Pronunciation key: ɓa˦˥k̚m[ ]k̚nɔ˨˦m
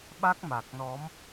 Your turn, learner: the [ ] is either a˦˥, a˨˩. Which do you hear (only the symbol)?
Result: a˨˩